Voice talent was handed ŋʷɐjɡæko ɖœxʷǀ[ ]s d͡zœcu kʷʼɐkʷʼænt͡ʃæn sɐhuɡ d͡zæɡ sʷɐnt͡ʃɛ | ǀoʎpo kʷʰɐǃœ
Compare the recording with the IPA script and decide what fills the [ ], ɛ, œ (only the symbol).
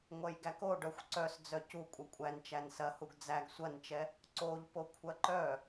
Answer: œ